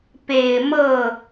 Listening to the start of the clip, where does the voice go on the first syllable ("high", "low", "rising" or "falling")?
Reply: low